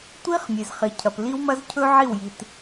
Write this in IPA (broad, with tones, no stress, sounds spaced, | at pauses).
tʷ i˦ χ mʲ e˨ z χ i˨ cʰ ɐ˨ p l i˦ w m ɐ˦ z cʰ ɵ˦ ʕ i˦˨ w j i˨ t